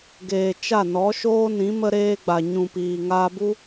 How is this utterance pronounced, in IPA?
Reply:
ɡ eː˨ t͡ʃ a˦˨ n ɔ˨˦ ʃ oː˦ n ĩ˨˦ m ə˧ ɾ eː˧ ɡ͡b a˨ ɲ ũ˨ p iː˨ ŋ aː˧ b u˦

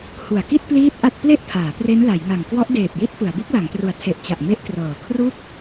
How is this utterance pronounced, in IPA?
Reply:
h u˨˩ a̯ k i˥˩ t̚ p l iː˦˥ t̚ ʔ a˥˩ t̚ p l e˥˩ ʔ pʰ aː˩˦ p r e˦˥ n l a˩˦ j ŋ a˨˩ ŋ k w ɔ˦˥ ʔ d eː˨˩ p̚ j i˦˥ t̚ p ɯ˩˦ a̯ b u˦˥ k̚ l a˩˦ ŋ t r u˨˩ a̯ tʰ e˨˩ ʔ t͡ɕ a˨˩ ʔ m e˦˥ ʔ t r ɤː˨˩ kʰ r u˥˩ k̚

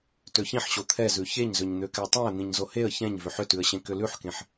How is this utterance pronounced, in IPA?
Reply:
t ø ç ĩ ħ ɕ o t̪ʰ ɛ z ʉ ç e ɲ z ø ɲ n̪ ø k ɛ tˤ ɛ̃ ə̯ n̪ ĩ ɲ z o h e ə̯ ç ɛ̃ ɲ v ʏ ħ ʏ t ʉ ə̯ ɕ ẽ k ʏ l ʉ ħ k ẽ ħ

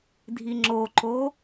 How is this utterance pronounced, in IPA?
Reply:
dʱ i ŋ͡ǁ o ǃ o

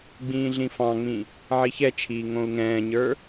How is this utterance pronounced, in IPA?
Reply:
ɡ͡b ĩː ɮ ĩ f ɑ̃ ŋ͡m ĩ | ʕ i ç ɛ t͡ʃʰ iː ŋ õ u̯ ŋ ɛ̃ː ɲ ə˞

